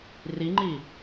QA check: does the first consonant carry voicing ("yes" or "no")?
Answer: yes